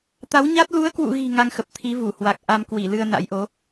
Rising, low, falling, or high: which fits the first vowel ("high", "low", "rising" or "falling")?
rising